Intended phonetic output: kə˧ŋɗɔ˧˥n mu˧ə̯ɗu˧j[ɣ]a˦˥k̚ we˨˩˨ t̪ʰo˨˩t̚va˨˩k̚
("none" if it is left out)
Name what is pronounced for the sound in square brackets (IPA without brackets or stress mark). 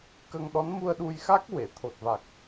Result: x